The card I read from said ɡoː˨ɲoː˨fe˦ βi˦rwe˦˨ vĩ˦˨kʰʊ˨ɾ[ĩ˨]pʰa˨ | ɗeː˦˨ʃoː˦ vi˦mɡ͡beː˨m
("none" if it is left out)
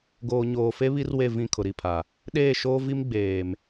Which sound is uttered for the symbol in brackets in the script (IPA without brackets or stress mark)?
i˨